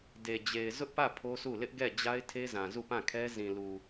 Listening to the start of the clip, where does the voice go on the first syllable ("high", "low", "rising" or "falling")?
low